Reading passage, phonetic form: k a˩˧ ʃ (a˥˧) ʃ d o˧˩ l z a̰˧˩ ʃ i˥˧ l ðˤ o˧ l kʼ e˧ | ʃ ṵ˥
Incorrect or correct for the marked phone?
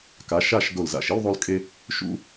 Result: correct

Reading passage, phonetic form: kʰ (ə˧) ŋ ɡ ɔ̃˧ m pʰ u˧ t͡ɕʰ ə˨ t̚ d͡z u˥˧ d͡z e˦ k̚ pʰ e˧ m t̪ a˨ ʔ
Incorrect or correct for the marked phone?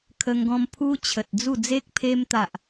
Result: correct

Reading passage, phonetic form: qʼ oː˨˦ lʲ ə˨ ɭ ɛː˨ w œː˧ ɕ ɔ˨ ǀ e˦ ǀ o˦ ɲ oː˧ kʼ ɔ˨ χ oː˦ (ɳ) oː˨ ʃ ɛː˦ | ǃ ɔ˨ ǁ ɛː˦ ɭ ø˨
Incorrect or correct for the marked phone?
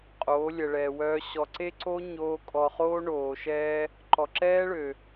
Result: correct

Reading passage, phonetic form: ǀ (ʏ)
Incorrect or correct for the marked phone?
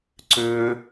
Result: correct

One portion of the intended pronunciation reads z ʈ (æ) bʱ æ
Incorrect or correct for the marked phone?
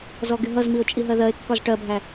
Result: incorrect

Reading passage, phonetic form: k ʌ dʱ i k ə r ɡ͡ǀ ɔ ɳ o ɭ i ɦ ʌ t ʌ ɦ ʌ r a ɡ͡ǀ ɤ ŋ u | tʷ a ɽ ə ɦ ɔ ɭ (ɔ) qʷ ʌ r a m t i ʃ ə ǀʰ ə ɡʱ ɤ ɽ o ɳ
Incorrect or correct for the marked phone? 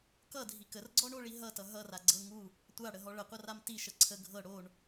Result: incorrect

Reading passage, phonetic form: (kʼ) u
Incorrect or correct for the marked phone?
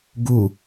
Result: incorrect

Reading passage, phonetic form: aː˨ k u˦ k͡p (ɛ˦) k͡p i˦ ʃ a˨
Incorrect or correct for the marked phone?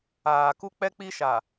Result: correct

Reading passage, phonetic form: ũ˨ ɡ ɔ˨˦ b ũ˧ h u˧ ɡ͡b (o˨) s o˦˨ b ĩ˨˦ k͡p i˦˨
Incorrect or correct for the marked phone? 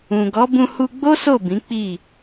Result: incorrect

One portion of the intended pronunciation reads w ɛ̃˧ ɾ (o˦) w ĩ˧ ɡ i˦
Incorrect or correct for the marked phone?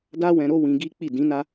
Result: correct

